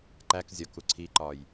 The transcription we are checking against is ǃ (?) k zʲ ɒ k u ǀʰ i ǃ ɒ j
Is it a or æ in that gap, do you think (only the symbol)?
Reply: æ